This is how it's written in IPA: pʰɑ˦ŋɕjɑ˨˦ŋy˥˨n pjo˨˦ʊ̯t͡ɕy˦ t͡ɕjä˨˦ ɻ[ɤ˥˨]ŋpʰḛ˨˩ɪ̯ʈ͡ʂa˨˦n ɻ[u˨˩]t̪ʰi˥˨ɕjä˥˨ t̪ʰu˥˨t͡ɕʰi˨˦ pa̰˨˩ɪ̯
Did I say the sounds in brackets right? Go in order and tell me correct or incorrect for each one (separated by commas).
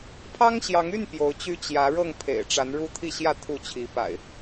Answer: correct, incorrect